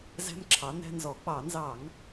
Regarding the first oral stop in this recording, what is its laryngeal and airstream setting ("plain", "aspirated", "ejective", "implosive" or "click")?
click